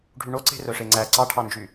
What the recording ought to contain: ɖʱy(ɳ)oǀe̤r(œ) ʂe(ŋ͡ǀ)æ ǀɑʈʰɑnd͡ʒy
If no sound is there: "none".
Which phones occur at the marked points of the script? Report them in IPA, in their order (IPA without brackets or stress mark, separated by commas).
ɳ, œ, ŋ͡ǀ